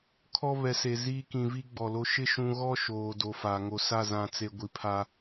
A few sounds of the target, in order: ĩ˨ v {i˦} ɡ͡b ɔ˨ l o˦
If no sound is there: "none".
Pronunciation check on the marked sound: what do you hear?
i˦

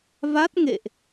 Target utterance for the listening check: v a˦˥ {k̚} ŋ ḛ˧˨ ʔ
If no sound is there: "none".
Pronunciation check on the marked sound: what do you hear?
t̚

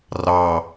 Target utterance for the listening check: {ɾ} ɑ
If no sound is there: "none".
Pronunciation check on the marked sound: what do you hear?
r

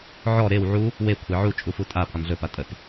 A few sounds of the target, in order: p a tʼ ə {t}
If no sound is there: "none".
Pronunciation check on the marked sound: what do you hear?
t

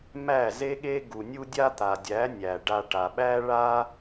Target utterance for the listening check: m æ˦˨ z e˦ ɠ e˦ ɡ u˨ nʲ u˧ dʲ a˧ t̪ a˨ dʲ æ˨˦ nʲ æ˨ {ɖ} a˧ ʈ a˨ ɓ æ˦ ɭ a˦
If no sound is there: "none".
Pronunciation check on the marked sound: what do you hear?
ɖ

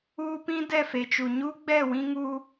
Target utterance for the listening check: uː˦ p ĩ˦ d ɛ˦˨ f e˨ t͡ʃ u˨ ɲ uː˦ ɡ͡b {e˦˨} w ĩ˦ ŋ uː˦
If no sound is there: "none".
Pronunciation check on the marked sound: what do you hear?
ɛ˦˨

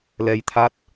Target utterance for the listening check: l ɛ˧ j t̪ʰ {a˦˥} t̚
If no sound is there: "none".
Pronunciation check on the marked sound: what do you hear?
a˦˥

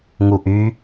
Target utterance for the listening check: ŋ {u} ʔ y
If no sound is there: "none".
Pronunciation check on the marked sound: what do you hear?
u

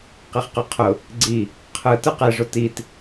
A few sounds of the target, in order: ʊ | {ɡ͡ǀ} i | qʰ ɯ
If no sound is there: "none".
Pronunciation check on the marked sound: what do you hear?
ɡ͡ǀ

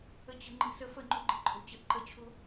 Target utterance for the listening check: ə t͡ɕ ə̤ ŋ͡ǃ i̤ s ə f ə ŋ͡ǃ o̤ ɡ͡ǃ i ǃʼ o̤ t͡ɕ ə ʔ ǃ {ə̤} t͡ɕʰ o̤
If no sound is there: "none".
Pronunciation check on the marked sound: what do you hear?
ə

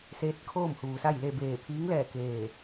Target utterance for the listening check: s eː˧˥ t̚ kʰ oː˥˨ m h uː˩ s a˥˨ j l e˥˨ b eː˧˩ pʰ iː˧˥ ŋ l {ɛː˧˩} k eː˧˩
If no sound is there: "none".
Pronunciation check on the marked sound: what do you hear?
ɛː˧˩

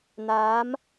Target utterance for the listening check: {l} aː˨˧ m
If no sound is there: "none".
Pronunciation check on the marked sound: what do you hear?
n̪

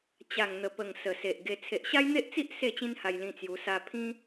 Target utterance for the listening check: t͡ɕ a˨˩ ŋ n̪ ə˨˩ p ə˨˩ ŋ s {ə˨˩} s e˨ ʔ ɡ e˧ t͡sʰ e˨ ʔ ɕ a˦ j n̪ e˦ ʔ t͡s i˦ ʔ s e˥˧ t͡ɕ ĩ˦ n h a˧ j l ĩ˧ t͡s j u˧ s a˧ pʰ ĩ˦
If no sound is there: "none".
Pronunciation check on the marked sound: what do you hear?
ə˨˩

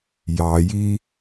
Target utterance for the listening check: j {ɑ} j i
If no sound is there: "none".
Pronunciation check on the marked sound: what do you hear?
ɑ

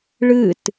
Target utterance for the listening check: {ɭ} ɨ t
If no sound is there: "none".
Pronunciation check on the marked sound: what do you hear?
ɭ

